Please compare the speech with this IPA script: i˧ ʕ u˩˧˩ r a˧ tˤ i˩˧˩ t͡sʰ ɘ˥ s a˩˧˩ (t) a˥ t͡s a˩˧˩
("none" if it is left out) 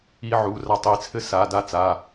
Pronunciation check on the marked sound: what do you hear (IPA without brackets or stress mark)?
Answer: d